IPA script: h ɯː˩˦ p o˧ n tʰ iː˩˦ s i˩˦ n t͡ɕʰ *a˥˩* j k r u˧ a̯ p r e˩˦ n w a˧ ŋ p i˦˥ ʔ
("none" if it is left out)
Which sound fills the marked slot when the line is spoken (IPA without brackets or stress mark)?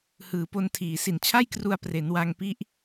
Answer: a˥˩